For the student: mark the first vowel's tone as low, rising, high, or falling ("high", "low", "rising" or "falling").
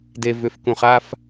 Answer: low